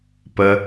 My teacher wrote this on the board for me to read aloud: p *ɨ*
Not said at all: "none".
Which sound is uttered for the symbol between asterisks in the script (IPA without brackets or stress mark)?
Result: ə